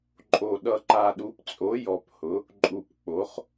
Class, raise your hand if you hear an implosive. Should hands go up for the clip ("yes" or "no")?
yes